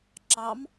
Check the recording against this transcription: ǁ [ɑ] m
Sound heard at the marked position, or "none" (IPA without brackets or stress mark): ɑ